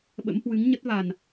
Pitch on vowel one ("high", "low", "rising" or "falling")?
rising